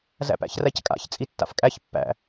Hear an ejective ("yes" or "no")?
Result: yes